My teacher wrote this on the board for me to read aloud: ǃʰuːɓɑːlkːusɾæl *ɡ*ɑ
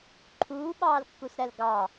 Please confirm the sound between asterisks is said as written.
yes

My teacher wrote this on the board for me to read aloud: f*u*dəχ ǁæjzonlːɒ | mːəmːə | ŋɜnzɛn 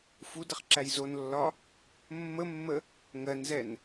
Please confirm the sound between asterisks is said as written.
yes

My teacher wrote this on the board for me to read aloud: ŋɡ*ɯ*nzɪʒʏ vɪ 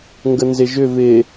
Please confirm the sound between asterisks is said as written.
no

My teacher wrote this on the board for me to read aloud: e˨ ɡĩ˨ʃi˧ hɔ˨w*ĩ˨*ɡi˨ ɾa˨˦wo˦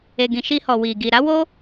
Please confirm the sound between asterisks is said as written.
no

